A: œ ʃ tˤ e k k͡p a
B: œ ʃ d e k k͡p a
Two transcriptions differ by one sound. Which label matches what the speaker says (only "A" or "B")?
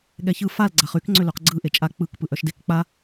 B